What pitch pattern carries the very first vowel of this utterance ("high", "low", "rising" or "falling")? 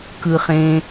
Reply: low